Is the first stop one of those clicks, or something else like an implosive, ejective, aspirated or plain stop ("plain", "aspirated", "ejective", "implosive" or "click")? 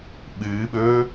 implosive